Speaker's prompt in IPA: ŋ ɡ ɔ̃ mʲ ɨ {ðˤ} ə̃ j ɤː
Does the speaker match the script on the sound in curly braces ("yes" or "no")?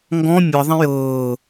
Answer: yes